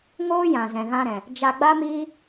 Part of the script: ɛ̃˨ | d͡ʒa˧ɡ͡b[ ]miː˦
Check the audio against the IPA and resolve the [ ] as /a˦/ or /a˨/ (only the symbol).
a˦